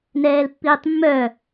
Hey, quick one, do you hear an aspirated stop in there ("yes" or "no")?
no